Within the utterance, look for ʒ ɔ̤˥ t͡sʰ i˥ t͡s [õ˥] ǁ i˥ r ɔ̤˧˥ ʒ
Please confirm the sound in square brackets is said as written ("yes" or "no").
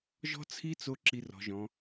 no